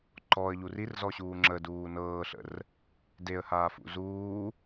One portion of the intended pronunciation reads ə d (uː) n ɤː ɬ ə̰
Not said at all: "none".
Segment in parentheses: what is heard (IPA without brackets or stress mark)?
uː